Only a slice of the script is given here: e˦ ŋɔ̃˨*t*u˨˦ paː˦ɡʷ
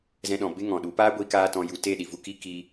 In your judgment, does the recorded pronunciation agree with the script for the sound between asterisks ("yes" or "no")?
no